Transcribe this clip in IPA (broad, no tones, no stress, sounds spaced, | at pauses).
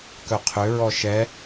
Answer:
k œ qʰ ø ɹ ɔ ʃ ɛ